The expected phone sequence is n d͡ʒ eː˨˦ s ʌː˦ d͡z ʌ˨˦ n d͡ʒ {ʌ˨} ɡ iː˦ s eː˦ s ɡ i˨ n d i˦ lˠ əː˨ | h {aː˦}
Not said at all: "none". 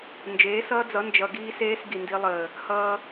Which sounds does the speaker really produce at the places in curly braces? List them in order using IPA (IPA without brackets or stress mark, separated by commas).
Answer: ʌ˨, ʌː˦